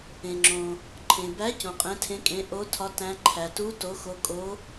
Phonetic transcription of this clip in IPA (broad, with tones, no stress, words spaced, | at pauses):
ẽ˩ŋ͡ǁõ˩ | ǃʰẽ˩bæ˨˥ cõ˩qʼẽ˨˥tʰẽ˨˥kʼẽ˨˥ ʔo˨˥tʰɒ˨˥ tæ̃˨˥ǃʰæ˩ tu˨˥ to˨˥xo˨˥ kʼo˨˥